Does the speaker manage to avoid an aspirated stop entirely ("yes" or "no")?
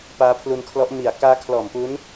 no